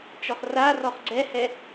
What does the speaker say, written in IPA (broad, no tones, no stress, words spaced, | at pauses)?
t͡ʃɔχrarɔχ ɡ͡ǀɛhɛ